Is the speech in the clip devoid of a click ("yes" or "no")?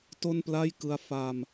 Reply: yes